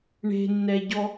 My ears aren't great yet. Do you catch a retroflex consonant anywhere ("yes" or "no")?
yes